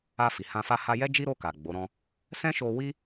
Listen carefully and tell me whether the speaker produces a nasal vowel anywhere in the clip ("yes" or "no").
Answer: yes